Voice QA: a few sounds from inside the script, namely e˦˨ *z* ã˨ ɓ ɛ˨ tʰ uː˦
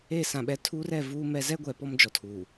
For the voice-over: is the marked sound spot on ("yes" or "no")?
no